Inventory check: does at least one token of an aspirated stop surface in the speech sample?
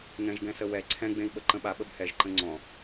yes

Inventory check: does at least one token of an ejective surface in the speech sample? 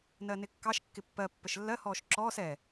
no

